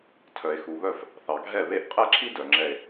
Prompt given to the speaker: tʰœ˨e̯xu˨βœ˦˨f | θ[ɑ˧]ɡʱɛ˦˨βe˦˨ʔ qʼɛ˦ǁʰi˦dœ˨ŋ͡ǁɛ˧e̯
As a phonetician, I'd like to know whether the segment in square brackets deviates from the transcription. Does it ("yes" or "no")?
yes